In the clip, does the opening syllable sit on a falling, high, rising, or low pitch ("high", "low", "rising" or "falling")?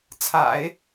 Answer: low